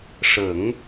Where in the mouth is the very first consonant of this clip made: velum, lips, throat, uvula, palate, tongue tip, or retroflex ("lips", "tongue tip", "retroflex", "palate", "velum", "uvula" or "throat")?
retroflex